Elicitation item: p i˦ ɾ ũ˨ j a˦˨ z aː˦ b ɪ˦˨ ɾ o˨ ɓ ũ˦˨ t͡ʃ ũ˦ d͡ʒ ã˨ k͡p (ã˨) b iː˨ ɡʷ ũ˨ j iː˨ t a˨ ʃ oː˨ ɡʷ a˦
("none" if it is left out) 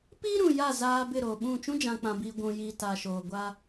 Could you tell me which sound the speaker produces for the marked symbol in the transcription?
ã˨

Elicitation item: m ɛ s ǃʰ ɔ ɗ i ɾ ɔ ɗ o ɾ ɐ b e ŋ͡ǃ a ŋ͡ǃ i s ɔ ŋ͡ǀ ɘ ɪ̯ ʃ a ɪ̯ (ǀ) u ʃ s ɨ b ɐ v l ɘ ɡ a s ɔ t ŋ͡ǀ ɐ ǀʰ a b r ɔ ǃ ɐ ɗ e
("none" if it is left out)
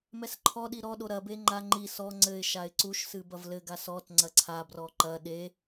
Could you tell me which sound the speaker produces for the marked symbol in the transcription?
ǀ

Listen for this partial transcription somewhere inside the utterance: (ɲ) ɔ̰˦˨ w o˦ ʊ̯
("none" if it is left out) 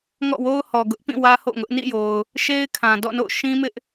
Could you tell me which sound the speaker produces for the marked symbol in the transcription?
ŋ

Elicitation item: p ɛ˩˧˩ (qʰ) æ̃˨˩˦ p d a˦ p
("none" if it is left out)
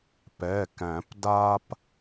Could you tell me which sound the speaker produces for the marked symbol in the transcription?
k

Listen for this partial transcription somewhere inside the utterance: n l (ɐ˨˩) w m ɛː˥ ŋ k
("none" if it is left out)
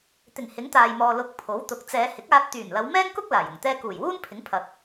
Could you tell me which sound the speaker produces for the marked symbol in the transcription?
ɐ˨˧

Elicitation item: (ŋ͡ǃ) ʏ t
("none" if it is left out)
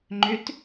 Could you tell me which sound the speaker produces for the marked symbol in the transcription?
ŋ͡ǃ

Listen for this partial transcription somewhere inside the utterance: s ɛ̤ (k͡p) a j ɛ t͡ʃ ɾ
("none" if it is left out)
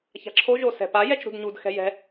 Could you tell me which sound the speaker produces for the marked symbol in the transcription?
p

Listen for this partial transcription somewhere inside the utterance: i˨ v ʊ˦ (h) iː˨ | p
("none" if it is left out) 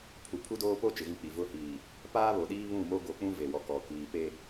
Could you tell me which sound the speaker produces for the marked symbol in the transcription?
h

